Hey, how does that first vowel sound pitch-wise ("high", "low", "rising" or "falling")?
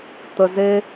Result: low